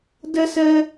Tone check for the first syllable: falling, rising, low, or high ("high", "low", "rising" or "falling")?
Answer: high